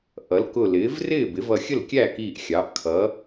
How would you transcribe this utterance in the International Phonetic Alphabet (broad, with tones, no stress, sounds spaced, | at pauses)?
ʔ ʌ˩˥ l k ʊ˧˩ l ɪː˩˥ v r ɪː˥˩ b ɪ˩˥ v ʌ˧˩ xʲ ə˥˩ l kʲ æ˥˩ k iː˧˩ ʔ xʲ ɑ˩˥ ʔ kʰ ʌ˩˥